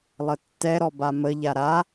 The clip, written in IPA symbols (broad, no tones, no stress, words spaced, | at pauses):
lˠətːɛɾɔ baməʎa ɾa